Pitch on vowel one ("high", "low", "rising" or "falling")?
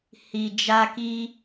low